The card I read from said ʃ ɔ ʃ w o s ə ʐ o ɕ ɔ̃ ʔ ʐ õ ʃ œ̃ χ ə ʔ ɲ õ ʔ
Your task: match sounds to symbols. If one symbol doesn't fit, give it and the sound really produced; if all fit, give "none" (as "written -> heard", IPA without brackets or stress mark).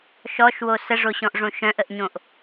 χ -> ʔ